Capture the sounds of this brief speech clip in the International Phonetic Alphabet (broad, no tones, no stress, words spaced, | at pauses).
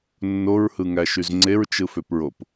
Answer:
nːoɹhɯŋæʃyz ŋ͡ǀeɹt͡ʃɯføpɹop